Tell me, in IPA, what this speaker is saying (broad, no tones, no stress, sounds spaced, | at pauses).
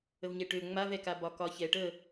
ə v ɲ ɛ ʈ ø ŋ͡m a v ɛ k a b ɒ k ɒ ç ɛ ʈ ə